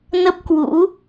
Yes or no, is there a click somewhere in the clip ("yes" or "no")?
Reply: no